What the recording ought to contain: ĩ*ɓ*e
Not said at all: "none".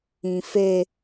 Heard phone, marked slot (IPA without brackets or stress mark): f